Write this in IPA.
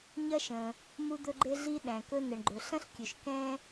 ɲ ɐ˥ ʃ ə̃˩ | m u˦ d̪ ɵ˦ ɡ͡ǃ e˦ ɮ i˦ ɗ æ̃˩ k ɵ˦ n ə˩ ɳ ɡ͡ǃ ɵ˩ ɬ ɐ̃˥ ɬ kʲ ɵ˩ ʃ k ɛ̃˥

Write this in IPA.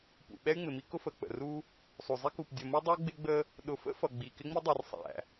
p ṵ˨ ɓ ɛ˦ y̯ ŋ͡m ɪ˨ m i˦ k ʊ˦ f ə˨ k͡p ə̰˨ r u˦ | sˤ u˨ zˤ i˦ k u˨ p dʲ ʌ˨ m u˦ dˤ ə˞˦ ɡ͡b ɪ˦ ɡ͡b ə˦ | ɗ ʊ˨ f ə̰˦ f ʌ˨ ɡ͡b i˨ k ɪ˦ ŋ͡m i˦ dˤ i˨ r sˤ æ̰˨

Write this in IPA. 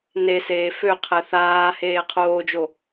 n e s eː f ø qʰ ɛ θ aː h eː qʰ oː d͡ʒ o

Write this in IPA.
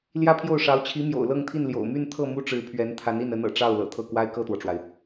l j ä˥ pʰ j o˥˩ ʊ̯ ʂ ɑ˧˥ ʊ̯ t͡ɕʰ i˧˥ m j o̰˨˩ ʊ̯ l ɤ˥˧ ŋ t̪ʰ i˥˩ n l j o̰˨˩ ʊ̯ m y˥˧ n t̪ʰ ɤ˥˩ m u˥ ʈ͡ʂ ɻ̩˧˥ pʰ ɥ ɛ˧˥ n t̪ʰ a˧˥ n i˥˩ n ə˧˥ n ɤ̰˨˩ ʈ͡ʂ ɑ˥˩ ʊ̯ l ɤ̰˨˩ t̪ʰ ɤ˥˩ k w a˥ ɪ̯ k ɤ˥˩ t̪ w ɔ˩ ʈ͡ʂ w a˩ ɪ̯

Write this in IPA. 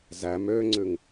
z æ m øː ŋ͡ǀ ʉ ŋ

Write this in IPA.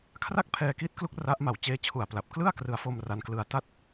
kʰ r a˥˩ k̚ pʰ ɛː˧ k i˦˥ t̚ k l u˦˥ k̚ r a˦˥ ʔ m a˨˩ w t͡ɕ eː˦˥ t͡ɕʰ u˨˩ a̯ p l a˨˩ p̚ k l ɯ˥˩ a̯ k r ɯ˨˩ a̯ f o˧ m r a˦˥ n k l ɯ˧ a̯ t a˥˩ t̚

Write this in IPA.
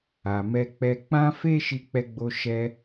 a˨ m ɛ˧ k͡p ɛ˧ k͡p ã˦ f e˦ ʃ i˧ k͡p ɛ˧ ɡ͡b o˧ ʃ ɛ˧

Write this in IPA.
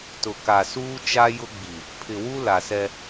t ʊ˨ k a˨ s uː˦ t͡ʃ a˦ j ʊ˦ ɡ͡b i˨ | pʰ ɪ˨ w u˦ l a˨ s ɛ˦

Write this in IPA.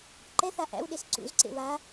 ǃ ɛ θ a ʔ æ̰ w ɗ e s ǀ ṵ z ǀ ḛ w a

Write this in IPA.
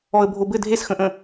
ɔ ə̯ bʱ o b ɘ dʱ e s x ə̃ ʔ ə̃

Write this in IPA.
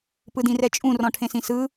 p ɯ d ĩ r ɛ t͡ʃʼ ũ r ɔ̃ ʈʰ ẽ s ĩ s ɯ

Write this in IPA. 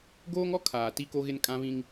ɡ oː˦ ŋ ɔ˦ kʰ aː˨ t i˦ k o˦ ɣ ɪ˦ n kʼ ã˦ β ĩ˦ ŋ

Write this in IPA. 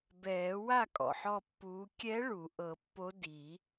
b ɛː˨˩˦ w a˥˨ kʼ ɔ̰˨˩ ħ ɔ˥˨ pː uː˧˥ kʲ ɛ˧˥ ɭ u˨˩˦ ʔ ɤ˨˩˦ pː o˧˥ d i˨˩˦

